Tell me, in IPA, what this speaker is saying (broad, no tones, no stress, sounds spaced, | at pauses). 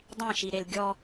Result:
dˤ ĩ ʃ i ɾ e l ɡʲ ɔ